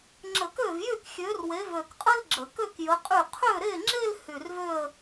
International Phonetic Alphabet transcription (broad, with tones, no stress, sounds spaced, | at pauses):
ŋ͡ǁ ə˧˩˧ k ø˥˩ v j y˥˩ k xʲ ø˨˥ r w e˨˥ v ø˧˩ k qʼ ə˥ l ɡ͡ǁ ə˧˩˧ k ø˥˧ k j ə˨˥ qʼ y˥˩ qʰ ø˥˩ ɾ e˥˩ ŋ͡ǁ e˥˧ l h y˧˩ r v ø˥˧ ə̯